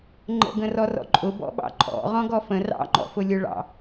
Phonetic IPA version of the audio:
ŋ͡ǃ ə̰ ɡ ə̃ r ɔ r ɔ̰ ǃʼ ʊ b ɔ̰ ɓ ɑ̰ ǃʼ ɔ̰ ʁ ɔ̃ ɡ ɔ f ə̃ r ɑ̰ ŋ͡ǃ ɔ̰ f ʊ lʲ ʊ ɭ ɑ̰

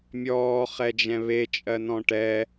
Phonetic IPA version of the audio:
mʲ ɔː χ ɛ d͡ʒ ɛ̃ β e t͡ʃʼ ɜ n ɔ̃ ʈ ɛ

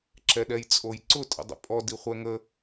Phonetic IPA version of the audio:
ǁ ɛ ɗ ɛ j t͡sʼ o j ǀ ʊ tʼ ə̰ dˤ ə̰ pʼ ɔ d i χʷ ɛ ŋ ə

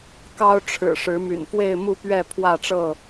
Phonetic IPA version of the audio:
k ɑ˦ ʊ̯ ʈ͡ʂʰ ɻ̩˨˩ ʂ ɻ̩˨˦ m y̰˨˩ n f w e˥˨ ɪ̯ m u˥˨ p ɥ ɛ˥˨ pʰ w ä˥˨ ʈ͡ʂ ɤ˥˨

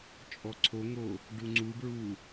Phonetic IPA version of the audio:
t͡ʃʼ ɔ ǀʰ o ŋ o | ɖ u ŋ͡ǀ u b ɹ u

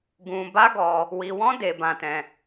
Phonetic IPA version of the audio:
ɡ ũ˧ b a˦ ɡ ɔ˧ | w i˧ w ɔ̃˦ d e˧ b ã˧ t ɛ̃˧

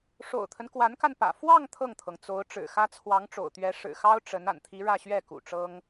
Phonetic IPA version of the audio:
ʂ o̰˨˩ ʊ̯ t̪ʰ ə˦ n k w a˧˥ n k a˧ n p ä̰˨˩ f w ɑ˥˧ ŋ t̪ʰ ɤ˥˩ ŋ t̪ʰ ɤ˩ ŋ t͡s o˧˥ ʊ̯ ʈ͡ʂ ɻ̩˨˩ x ä˥ t͡sʰ w ɑ˧˥ ŋ ʈ͡ʂ o̰˨˩ ʊ̯ t̪ ɥ ɛ˧˥ ʂ ɻ̩˨˩ x ɑ˥ ʊ̯ ʈ͡ʂ ə˧˥ n a̰˨˩ n t̪ʰ i˧˥ ɻ ä˥˧ ɕ ɥ ɛ˥˩ k ṵ˨˩ ʈ͡ʂ ɤ˥ ŋ

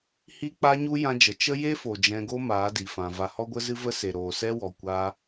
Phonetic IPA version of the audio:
h i˦ k͡p a˦ ɲ u˦ j ã˦ d͡ʒ ə˨ t͡ʃ ə˦ j e˦ f o˨ d͡ʒ ɛ̃˧ ɡ o˦ m aː˨˦ d i˨ f ã˨ v a˧ h ɔ˧ ɡʷ ə˧ z ɨ˧ v ə˧ s e˨ ɾ oː˨ s ɛ˦ w ɔ˨ kʷ a˧

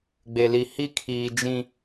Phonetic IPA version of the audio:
ɡ͡b e˨ l i˨ h i˦ kʰ iː˨ d͡ʒ ĩ˦

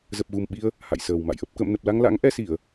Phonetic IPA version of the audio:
z ə˨˩ p̚ ɣ u˨˩ m ɓ i˧ ə̯ | h a̰˧˨ j s əː˨˩ w m a̰˧˨ j ʔ ə˦˥ p̚ k ə̰ː˧˨ m n ə˨˩ p̚ l a˧ ŋ l a̰˧˥ ŋ ʔ ɛ˧ s i˧˩˨ ə̯

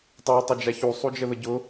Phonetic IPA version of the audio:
tˤ a tˤ ø d͡ʒ a ç u sˤ u d͡ʒ ə ð ə ɟ ʊ

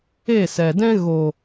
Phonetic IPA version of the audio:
e˦˨ s ɛ˨ d ɛ̃˦ ɣ o˨

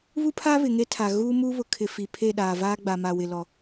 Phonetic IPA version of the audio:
β u˦ pʰ a˦ β ɪ˨ ŋ e˦ tʰ a˨ ɣ uː˦ m uː˦ β ʊ˨ kʰ ɪ˨ f i˨ pʰ e˦˨ ɗ aː˨ v aː˦ ɡ͡b a˨ m a˨ w ɪ˨ l ɔ˨

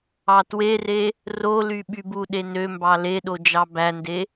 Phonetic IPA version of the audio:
ɑ t w e r e | r o l y ɓ y b u ɗ e n ø m b ɑ l e ɗ o d͡ʒ ɑ b æ n d e

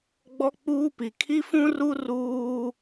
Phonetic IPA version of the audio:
ɡ͡b ɔ˦ k͡p uː˦ p i˨ kʰ i˦ f ũ˦ r u˦ r uː˦

